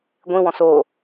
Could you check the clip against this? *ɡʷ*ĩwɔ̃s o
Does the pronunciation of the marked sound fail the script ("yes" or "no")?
no